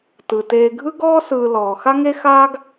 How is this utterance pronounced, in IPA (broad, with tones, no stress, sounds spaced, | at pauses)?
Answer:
t ɯ˩ t eː˨ ɡʱ ɯ˦ ɡ ɔː˦ s ɯː˨ l ɔː˩ x a˦ ŋ e˦ x aː˦ ɡ